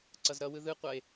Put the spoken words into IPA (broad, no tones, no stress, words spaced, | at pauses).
ǀʌzɾʌwɯ ðɯqʷʌe̯